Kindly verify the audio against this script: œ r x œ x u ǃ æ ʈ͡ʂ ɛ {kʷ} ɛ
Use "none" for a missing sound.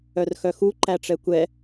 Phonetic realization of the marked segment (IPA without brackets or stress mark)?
kʷ